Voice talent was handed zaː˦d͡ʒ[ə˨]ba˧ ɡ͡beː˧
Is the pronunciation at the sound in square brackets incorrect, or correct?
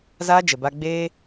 correct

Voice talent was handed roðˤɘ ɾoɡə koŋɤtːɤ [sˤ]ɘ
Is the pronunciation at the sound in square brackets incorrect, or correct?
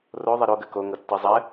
incorrect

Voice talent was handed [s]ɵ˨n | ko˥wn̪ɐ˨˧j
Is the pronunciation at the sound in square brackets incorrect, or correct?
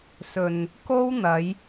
correct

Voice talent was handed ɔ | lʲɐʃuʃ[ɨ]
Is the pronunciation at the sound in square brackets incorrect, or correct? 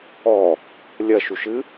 correct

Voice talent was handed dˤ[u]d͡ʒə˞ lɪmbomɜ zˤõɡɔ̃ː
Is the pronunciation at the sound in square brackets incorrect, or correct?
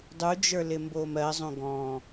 correct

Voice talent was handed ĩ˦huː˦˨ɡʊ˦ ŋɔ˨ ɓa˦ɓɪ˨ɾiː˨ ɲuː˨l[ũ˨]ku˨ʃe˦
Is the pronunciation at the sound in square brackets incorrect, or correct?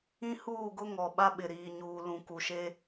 correct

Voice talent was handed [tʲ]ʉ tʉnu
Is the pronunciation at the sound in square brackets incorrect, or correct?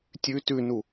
correct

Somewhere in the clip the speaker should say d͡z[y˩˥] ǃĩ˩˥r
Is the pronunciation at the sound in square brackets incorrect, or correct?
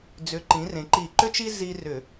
incorrect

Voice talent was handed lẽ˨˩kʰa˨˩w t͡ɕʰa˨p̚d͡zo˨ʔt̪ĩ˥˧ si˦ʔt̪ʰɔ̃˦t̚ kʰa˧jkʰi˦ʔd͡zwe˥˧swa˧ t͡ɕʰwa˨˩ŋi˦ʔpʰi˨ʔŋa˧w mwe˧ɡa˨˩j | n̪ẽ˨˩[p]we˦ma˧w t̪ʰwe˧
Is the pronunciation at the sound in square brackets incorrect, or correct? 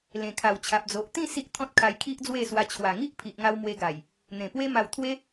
correct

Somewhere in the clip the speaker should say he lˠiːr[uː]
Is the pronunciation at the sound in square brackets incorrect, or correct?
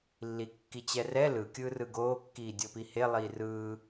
incorrect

